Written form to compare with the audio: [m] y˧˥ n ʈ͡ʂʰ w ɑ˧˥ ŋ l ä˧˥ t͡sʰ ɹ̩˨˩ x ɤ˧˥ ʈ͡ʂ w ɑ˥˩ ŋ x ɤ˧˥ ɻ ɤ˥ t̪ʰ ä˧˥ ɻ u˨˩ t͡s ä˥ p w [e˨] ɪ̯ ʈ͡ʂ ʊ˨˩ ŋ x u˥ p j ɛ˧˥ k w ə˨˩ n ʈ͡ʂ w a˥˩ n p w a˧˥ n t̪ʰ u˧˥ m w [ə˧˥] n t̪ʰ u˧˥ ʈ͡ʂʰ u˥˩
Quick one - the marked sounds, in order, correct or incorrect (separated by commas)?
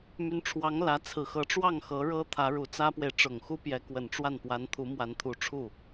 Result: correct, correct, incorrect